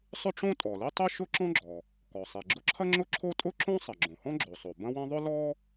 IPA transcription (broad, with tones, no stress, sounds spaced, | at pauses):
sˤ ʊ˥ ʈ͡ʂ õ˥ tʼ ɔ˩ l i˥ tˤ i˥ ʃ ʊ˥ ǁ ɔ̃˥ ɡ͡ǁ ɔ˩ | k ɔ˩ sˤ i˩ ɡ͡ǁ ʊ˥ ǁʰ ɐ˥ ŋ͡ǁ ʊ˥ ǁʰ o˥ tʼ ʊ˥ ǁ õ˥ sˤ ɐ˩ ɡ͡ǁ õ˩ h ɔ̃˥ ɡ͡ǁ o˩ sˤ o˩ b ɐ̃˥ w ɐ̃˥ ðˤ ʊ˥ l ɔ˥